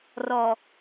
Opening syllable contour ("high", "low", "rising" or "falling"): low